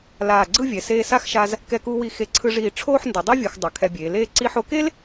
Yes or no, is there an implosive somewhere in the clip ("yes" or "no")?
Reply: no